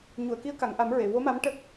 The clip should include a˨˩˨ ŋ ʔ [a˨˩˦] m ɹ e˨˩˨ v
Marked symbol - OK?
yes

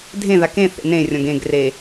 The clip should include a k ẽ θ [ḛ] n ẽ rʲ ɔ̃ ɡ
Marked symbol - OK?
yes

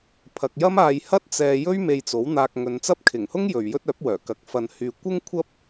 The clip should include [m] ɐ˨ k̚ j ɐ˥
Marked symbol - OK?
no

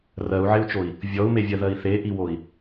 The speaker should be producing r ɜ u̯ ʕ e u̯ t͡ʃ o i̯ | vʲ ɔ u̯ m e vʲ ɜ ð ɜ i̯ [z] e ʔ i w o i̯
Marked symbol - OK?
no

